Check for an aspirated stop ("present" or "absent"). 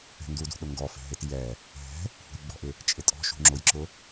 absent